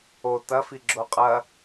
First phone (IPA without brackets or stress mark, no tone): o